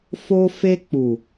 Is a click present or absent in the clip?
absent